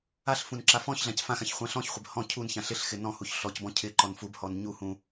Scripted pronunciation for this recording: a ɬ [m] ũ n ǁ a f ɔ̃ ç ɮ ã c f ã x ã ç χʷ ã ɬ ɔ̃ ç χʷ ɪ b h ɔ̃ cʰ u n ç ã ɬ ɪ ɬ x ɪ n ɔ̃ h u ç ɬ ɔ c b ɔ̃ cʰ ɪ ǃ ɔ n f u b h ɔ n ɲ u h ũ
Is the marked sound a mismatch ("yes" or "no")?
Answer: yes